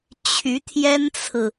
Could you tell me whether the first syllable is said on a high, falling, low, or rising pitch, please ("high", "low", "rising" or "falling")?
rising